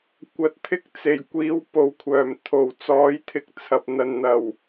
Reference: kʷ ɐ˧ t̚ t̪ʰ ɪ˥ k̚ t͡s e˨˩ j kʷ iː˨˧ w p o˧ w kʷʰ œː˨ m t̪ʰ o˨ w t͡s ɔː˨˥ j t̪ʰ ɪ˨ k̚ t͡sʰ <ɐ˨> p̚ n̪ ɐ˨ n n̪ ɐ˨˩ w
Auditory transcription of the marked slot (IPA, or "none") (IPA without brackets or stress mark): ɐ˨